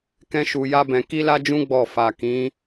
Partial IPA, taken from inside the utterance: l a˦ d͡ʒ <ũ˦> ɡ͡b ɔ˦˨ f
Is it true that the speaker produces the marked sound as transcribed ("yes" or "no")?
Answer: yes